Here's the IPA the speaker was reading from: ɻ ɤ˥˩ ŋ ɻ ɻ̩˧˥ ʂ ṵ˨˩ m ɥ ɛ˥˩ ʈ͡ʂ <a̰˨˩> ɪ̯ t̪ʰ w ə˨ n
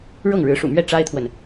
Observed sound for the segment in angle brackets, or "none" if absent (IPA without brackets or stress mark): a˥